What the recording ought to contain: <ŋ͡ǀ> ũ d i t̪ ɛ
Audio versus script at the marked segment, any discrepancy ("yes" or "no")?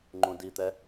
yes